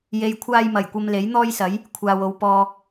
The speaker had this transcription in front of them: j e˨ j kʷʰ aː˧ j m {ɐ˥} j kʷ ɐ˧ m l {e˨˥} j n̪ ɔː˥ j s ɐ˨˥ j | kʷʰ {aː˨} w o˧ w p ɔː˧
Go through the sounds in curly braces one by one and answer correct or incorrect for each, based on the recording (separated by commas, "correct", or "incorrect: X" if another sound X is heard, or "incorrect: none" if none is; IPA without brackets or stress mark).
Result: incorrect: ɐ˨˩, correct, correct